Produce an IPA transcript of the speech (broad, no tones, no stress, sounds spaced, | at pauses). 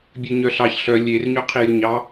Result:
bʲ ø ɲ œ ɬ ɑ ç ɬ œ lʲ e r ɲ ø qʰ i j ɵ ɲ ɑ